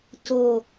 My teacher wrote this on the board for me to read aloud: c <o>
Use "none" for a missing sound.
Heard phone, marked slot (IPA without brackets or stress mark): o